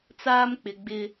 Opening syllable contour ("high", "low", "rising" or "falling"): high